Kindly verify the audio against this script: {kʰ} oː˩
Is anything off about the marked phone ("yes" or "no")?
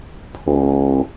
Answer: yes